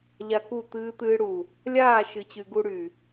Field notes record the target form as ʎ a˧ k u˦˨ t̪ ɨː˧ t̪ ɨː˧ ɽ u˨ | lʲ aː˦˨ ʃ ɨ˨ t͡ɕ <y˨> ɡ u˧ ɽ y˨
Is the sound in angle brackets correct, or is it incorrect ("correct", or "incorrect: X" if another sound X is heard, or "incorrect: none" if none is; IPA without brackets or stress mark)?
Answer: correct